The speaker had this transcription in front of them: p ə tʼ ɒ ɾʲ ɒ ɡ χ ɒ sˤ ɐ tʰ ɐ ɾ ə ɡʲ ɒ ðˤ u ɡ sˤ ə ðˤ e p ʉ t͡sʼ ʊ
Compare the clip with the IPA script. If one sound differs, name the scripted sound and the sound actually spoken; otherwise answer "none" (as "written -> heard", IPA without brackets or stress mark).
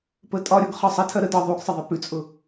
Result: ɡʲ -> d